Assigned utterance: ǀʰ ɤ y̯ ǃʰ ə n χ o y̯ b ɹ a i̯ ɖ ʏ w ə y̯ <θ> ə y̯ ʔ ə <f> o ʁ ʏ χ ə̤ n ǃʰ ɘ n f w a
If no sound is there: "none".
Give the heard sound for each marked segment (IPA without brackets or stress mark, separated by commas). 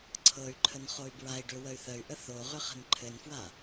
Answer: θ, θ